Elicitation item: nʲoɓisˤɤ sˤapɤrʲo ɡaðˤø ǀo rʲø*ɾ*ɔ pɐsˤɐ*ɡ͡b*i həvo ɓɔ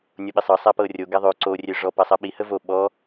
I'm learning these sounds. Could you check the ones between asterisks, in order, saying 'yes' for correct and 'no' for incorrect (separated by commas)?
no, no